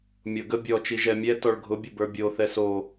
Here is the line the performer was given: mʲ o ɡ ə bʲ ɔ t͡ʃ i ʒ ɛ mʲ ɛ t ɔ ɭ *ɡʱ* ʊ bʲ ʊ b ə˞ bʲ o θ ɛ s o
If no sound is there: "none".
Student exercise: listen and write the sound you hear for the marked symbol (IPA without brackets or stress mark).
ɡʱ